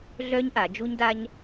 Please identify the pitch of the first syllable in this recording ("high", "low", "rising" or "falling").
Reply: high